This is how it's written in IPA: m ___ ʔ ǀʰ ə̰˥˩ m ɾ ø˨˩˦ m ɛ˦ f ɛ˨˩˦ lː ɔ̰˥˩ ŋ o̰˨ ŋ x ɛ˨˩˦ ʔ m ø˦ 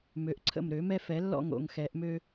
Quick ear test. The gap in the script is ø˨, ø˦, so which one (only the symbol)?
ø˨